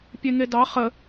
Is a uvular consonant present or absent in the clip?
present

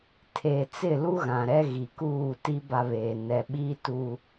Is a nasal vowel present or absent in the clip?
present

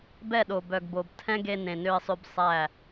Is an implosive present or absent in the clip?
present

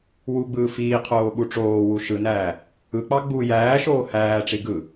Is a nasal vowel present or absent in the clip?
absent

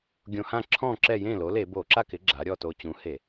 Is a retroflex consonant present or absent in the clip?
absent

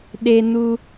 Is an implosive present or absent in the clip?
present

